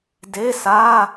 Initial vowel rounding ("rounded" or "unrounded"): unrounded